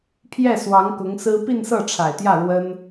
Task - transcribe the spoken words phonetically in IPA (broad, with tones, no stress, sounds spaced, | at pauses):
pʰ j ɛ˥˩ s w ɑ˧˥ ŋ k ʊ˧˥ ŋ s ɹ̩˥ p i˥˧ n s ɤ˥˩ ʈ͡ʂʰ a˨˩ ɪ̯ t̪ j ä˥˩ ɻ w ə˥ n